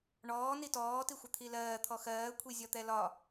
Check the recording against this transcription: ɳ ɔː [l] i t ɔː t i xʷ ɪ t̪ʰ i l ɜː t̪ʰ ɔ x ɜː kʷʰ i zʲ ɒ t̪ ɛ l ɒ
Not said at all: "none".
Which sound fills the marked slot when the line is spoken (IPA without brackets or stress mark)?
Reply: n